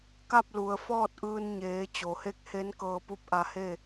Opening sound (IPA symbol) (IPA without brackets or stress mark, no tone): k